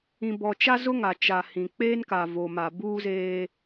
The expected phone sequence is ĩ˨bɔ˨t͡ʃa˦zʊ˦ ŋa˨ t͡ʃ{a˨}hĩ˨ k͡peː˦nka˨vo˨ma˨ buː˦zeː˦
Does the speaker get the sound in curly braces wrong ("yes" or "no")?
no